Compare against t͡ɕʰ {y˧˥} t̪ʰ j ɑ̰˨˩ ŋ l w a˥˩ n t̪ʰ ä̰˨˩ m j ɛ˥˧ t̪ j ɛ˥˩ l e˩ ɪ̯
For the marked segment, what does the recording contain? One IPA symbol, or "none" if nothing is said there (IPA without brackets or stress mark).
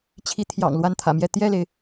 i˧˥